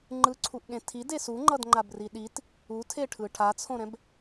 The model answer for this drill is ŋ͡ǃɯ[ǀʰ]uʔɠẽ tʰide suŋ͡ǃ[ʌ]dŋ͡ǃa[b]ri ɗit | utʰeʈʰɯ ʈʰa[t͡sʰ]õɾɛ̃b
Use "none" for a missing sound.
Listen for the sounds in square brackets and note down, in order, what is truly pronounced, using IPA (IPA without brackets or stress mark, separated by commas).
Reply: ǀʰ, ʌ, b, t͡sʰ